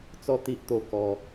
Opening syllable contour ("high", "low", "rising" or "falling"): falling